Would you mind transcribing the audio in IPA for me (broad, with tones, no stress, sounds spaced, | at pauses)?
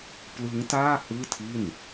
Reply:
p l ɯ˦˥ ŋ t aː˥˩ h ɯː˥˩ tʰ i˥˩ n